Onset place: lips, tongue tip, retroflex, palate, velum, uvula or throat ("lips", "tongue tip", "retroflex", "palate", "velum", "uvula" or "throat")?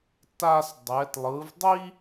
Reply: tongue tip